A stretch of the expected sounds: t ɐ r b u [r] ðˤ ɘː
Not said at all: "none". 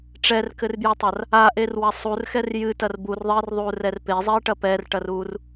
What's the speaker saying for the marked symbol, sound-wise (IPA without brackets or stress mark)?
r